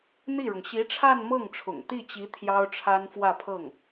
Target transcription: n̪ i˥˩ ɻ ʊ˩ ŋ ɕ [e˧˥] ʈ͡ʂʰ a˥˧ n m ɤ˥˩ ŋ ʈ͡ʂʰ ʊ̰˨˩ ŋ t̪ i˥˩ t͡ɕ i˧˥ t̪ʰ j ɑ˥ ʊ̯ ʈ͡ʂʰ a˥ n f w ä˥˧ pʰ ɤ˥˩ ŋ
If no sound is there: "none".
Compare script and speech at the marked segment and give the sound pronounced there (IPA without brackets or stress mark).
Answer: i˧˥